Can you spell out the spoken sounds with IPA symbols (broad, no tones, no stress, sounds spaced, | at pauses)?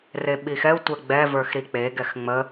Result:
r e ɓ i x ɛ u̯ tʷ ɛ ɡ͡b ɛ v ə˞ x ɾ i k͡p e ɡ ɛ x ŋ͡m ə